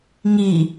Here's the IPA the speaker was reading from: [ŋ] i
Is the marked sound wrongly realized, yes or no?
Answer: no